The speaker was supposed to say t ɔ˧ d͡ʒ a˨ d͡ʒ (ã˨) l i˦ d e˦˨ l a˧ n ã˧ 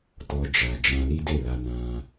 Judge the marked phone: incorrect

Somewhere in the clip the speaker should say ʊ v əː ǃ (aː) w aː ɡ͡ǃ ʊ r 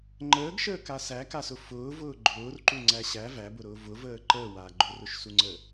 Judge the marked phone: incorrect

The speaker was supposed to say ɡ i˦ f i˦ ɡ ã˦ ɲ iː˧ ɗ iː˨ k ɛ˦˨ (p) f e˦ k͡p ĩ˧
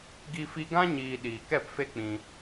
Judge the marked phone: correct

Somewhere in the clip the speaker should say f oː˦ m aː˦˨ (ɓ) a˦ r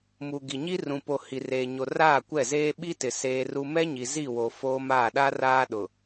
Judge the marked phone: incorrect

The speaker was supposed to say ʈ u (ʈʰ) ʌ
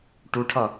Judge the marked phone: correct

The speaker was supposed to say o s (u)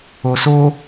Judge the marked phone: incorrect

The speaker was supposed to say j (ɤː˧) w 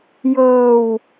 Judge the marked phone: correct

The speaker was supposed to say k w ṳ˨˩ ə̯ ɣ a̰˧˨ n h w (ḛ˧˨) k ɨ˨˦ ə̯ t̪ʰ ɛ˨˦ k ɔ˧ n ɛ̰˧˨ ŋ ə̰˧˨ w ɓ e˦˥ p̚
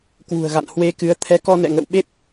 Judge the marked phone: incorrect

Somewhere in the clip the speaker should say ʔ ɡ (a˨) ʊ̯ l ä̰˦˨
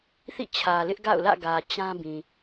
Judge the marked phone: incorrect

